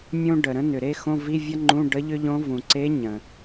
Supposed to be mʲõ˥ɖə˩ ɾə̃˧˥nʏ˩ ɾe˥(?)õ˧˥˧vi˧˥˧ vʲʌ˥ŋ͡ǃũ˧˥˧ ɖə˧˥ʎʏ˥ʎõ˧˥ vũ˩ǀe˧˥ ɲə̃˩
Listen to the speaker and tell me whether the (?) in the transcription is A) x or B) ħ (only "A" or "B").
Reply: A